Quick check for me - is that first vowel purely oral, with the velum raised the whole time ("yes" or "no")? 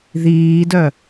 yes